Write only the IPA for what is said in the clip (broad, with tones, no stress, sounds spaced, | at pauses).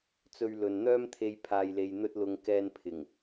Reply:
t͡s ɵ˧ ɥ l ɵ˨ n n̪ œː˥ m t̪ʰ e˧ j pʰ aː˨ j l e˨ j n̪ ɵ˧ t̚ l ʊ˨ ŋ k ɛː˧ n pʰ ɪ˨˩ ŋ